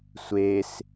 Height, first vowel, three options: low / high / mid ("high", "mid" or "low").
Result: mid